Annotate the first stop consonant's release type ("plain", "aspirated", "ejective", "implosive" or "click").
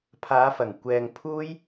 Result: aspirated